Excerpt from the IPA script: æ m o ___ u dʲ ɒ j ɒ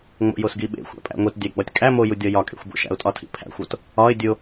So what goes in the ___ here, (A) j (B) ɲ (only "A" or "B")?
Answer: A